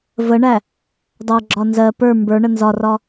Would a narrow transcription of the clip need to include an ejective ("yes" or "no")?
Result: no